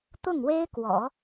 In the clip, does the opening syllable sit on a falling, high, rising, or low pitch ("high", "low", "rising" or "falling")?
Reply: falling